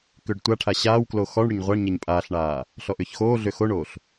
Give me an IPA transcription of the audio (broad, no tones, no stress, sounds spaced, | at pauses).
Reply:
k ʏː ɖ tʷ a ʈʰ a ɕ aː w k l o x ɔ ɳ ɽ ʏ ɲ ʁʷ a ɳ ɲ ɛ ɲ pʼ aː ɬ ɳ aː | ɬ ɔ ʔ ʏː ç x oː ɮ ʏː x o ɳ oː ɬ